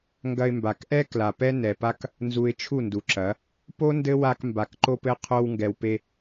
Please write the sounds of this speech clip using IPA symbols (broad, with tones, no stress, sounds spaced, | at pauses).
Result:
ŋ ɡ ɐ˧ ɪ̯ m b a˨ k ʔ ɛ˦ k l a˨ p ɛ˦ n ɛ˨ p a˦ k | n z u˧ ɪ̯ t͡ʃʰ u˦˨ n d u˨ ǁ ɐ˨˦ | p o˦ n d ɘ˦ w a˧ k m b a˨ k ǃ o˧ p ɘ˧ qʰ o˧ w ŋ ɡ ɛ˨ w p e˧